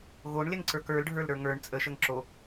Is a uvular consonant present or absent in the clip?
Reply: absent